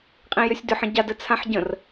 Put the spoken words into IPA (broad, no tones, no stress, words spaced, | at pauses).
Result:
qʼĩjʏsʲdʏħ ə̃ɟa dɘt͡sʰãħɟə̃r